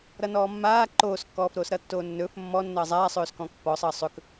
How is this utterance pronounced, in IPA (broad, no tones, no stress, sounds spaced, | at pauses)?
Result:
ɾ ʌ n ɔː mː aː ǃ oː s kː ɔː f ɾ oː s ɾ ʌ tː oː nː ɵː f mː ɔ nː ʌː zˤ aː sˤ ɵː s k ɔ̃ː k pː ɔ sˤ ʌː sˤ ɵ k